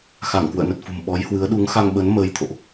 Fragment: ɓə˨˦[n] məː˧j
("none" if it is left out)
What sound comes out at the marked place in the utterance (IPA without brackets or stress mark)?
n